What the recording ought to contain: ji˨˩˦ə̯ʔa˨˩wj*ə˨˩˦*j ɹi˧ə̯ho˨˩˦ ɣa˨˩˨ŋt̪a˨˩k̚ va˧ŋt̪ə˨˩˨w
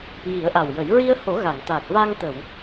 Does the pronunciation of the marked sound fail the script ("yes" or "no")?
no